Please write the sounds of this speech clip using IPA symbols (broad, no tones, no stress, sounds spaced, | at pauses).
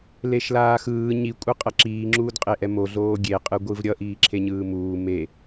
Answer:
l e ʃ l aː x ɯː ɲ i kʷʼ ɯ qʼ ʌ ǁ iː ŋ͡ǁ uː d qʼ e ʔ ɛ m o ɮ oː ɡʲ e qʼ ɯ ɡʷ ɯ v ɾʲ ʌ ʔ iː ǁʰ e ɲ ɯː m uː m e